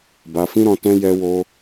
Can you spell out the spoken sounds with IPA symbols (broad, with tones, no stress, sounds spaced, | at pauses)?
b a˧ f ĩ˦ ɾ ɔ̃˧ t ɛ̃˦ j ɛ˧ w o˧